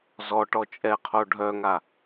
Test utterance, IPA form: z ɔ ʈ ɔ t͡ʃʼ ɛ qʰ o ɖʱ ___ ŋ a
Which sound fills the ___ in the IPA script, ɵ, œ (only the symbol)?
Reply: œ